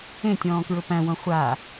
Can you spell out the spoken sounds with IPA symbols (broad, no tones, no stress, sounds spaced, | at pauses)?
ẽ tʲ ɔ̃ː k ɹ ʊ p æ̃ w õ χʷ a